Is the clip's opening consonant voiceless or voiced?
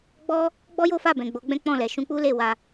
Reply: voiced